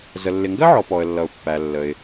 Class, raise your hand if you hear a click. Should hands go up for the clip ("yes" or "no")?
no